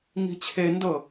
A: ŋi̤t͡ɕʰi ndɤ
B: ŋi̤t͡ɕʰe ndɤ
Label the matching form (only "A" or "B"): B